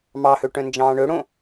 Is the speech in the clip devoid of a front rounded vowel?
no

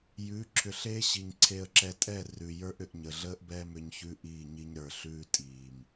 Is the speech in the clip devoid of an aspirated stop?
no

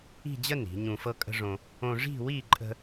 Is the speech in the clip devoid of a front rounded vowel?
yes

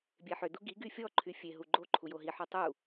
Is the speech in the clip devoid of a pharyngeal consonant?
no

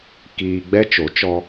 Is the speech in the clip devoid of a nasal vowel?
yes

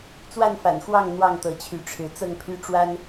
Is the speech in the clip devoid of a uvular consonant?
yes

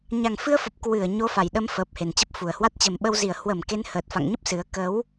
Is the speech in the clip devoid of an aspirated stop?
yes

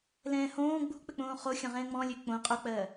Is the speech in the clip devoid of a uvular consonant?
no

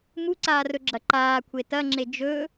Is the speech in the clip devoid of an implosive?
yes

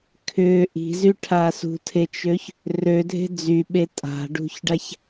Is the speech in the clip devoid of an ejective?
no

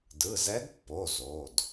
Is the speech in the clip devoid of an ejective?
yes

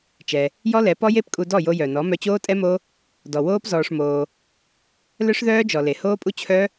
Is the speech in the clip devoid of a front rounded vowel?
no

